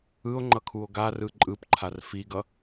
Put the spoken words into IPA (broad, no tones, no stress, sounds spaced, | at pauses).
ɯ o̯ ŋ͡ǃ ʌ kʰ u o̯ ɡ a r ɯ ǃʼ ɯ p ǃʰ a r f i ɡ ʌ